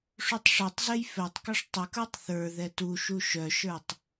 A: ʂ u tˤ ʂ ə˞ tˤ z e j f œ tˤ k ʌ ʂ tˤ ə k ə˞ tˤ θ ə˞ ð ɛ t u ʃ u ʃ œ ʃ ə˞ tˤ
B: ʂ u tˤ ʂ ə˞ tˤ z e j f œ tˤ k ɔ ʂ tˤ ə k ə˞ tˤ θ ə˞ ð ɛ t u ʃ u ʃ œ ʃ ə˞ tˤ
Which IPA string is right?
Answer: B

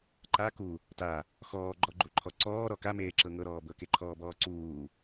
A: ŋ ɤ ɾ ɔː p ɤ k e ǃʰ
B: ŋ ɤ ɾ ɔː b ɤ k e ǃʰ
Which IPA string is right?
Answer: B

